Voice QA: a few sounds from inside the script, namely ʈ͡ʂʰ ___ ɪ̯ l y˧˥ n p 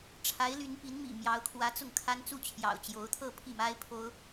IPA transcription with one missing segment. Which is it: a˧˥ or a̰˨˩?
a˧˥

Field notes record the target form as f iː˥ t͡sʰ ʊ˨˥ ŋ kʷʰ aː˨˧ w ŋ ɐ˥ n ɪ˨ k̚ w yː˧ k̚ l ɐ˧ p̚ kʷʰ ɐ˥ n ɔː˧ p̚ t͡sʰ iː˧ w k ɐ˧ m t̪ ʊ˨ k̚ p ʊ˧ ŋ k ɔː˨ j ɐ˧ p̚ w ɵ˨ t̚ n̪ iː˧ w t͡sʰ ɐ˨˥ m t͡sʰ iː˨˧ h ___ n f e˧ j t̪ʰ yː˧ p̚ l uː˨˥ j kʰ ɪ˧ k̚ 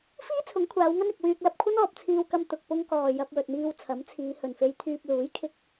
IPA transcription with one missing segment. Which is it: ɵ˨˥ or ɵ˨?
ɵ˨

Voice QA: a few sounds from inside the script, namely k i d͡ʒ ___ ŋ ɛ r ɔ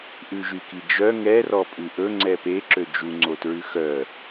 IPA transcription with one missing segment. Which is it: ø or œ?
œ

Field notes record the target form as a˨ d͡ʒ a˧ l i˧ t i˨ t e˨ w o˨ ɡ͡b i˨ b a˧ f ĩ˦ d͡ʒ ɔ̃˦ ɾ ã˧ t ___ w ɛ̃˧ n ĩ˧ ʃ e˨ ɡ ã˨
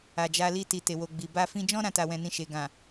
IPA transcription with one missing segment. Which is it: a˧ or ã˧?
a˧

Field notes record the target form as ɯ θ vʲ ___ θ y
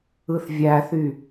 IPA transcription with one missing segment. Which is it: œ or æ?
æ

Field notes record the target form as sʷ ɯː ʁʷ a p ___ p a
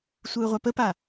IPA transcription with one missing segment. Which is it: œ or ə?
ə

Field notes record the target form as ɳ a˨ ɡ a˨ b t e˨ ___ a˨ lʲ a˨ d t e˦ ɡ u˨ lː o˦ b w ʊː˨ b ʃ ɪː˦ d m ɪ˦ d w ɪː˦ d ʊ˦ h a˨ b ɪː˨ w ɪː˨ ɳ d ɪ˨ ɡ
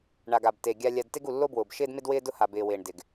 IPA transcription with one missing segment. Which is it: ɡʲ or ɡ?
ɡʲ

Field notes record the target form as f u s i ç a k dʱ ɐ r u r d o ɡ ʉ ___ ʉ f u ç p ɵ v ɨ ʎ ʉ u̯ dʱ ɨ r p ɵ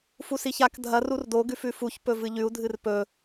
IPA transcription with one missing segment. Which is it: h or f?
f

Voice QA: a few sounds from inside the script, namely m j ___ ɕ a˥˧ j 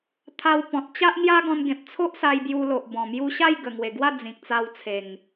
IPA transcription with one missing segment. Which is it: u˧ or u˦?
u˧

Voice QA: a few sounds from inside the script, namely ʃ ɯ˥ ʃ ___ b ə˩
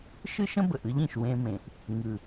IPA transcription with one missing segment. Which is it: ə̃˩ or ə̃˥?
ə̃˥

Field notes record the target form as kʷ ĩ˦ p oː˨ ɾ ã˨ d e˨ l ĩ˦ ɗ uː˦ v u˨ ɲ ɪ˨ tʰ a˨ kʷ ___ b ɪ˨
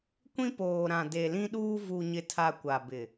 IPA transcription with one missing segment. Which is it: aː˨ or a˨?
a˨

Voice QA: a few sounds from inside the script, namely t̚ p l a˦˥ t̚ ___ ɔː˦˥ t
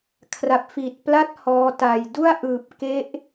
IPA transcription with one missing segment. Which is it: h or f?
h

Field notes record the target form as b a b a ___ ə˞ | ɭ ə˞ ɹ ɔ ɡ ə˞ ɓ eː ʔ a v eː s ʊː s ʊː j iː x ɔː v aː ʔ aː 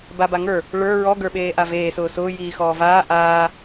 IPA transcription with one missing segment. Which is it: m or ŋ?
ŋ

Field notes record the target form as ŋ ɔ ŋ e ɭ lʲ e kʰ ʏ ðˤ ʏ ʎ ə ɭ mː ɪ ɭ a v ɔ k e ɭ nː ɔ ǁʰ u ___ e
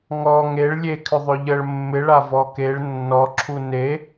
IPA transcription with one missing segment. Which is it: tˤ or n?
n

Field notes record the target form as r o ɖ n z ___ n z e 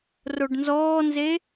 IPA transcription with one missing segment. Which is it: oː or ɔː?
ɔː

